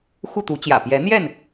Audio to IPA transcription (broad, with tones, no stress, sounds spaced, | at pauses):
x u˥˨ t̪ u˨˦ t͡ɕ j ä̰˨˩ p j ɛ˨˦ n̪ j ɛ˥˨ n